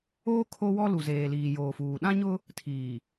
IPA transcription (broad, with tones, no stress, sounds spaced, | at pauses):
oː˦ kʰ o˦ w ɔ˦ l u˨ z eː˨ l iː˨ j oː˨ f uː˨ ɗ ã˦ ɲ ʊ˦ | tʰ iː˨